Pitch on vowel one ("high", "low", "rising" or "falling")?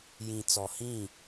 low